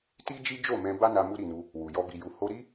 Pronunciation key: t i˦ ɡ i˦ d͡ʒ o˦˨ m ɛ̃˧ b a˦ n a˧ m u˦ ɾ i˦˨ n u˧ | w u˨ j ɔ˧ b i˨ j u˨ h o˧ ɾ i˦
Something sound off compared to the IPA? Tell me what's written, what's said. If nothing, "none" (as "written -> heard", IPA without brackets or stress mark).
ɡ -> d͡ʒ